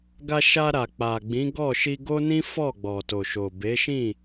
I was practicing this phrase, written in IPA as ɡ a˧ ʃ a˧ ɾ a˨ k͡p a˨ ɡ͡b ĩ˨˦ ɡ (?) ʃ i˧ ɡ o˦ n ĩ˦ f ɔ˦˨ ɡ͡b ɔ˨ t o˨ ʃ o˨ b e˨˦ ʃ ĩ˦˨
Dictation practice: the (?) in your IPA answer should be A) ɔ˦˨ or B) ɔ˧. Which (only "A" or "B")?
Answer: A